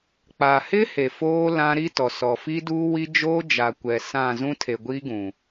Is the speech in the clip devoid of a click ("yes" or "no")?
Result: yes